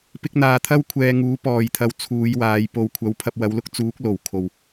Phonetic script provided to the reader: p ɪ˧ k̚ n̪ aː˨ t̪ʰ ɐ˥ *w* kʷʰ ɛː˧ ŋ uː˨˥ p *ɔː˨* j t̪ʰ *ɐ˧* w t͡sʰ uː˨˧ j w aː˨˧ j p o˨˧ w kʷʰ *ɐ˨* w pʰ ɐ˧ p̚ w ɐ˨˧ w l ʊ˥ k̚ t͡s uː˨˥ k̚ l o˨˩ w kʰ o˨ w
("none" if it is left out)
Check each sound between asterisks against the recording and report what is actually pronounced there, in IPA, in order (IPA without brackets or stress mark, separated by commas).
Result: w, ɔː˨, ɐ˧, ɐ˨˥